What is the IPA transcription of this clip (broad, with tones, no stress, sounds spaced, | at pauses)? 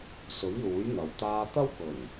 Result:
s ɵ˨˥ ɥ l uː˨˥ j n̪ ɐ˨ w t̪ aː˧ t̪ ɐ˥ w k ɵ˨˩ n